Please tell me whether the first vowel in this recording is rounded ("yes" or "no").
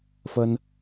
no